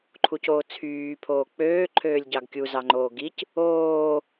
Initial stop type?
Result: click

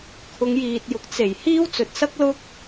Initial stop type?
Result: aspirated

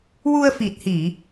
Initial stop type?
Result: plain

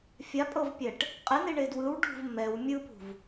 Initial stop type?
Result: ejective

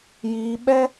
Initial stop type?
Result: implosive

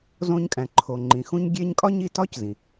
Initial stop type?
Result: ejective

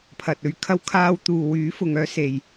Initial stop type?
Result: aspirated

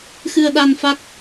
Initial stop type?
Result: implosive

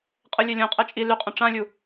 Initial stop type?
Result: ejective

